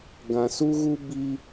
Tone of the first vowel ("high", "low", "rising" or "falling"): low